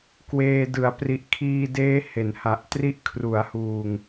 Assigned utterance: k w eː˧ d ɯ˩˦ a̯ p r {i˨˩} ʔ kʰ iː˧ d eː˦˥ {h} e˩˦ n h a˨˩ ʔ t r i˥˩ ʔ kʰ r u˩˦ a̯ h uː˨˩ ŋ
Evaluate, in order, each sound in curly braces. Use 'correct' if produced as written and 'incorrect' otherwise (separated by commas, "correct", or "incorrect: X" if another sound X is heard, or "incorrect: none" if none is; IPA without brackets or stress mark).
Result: correct, correct